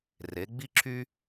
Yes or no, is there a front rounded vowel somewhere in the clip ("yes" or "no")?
yes